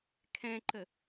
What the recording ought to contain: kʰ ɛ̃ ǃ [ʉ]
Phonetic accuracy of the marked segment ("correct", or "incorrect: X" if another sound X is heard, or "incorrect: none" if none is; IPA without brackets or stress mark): incorrect: ə